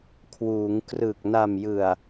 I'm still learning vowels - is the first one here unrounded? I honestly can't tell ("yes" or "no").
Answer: no